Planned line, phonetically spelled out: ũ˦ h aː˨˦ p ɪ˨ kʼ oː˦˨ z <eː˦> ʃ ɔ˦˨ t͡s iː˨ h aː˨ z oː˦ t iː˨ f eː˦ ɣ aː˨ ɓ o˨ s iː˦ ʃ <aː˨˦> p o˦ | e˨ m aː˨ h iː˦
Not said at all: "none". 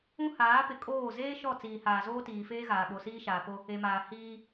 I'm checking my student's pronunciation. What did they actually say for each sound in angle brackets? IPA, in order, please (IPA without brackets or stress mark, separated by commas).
eː˦, aː˨